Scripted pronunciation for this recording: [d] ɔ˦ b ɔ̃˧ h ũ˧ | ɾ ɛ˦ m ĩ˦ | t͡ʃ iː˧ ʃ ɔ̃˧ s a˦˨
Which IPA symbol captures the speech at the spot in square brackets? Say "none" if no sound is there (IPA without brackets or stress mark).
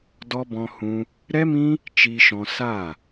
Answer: d